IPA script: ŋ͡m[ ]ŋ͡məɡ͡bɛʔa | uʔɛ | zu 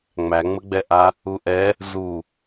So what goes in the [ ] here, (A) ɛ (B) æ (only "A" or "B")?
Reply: B